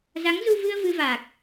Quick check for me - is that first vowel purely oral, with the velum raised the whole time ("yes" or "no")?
yes